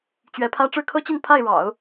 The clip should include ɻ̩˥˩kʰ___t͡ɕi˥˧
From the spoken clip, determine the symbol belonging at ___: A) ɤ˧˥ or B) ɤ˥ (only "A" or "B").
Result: B